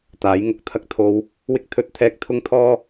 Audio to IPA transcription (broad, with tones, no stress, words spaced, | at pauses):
t̪aː˨˥j ŋʊ˨˥k̚t̪ʰɐ˧k̚t̪ʰo˧w | wɪ˥k̚ t̪ʰɵ˥t̚t̪ʰɛː˥k̚ t̪ʰʊ˥ŋt̪ʰɔː˥